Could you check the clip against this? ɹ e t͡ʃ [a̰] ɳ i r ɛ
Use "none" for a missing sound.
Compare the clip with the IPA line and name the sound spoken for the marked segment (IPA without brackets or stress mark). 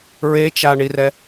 a